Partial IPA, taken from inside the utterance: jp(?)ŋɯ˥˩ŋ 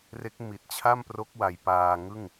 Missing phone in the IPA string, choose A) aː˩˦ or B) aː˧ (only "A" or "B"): B